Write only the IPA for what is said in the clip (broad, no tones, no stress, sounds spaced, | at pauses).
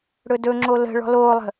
ɽ ɵ d ɵ ŋ͡ǁ o l ə̤ ɭ ɔ̤ l oː lˠ ə̤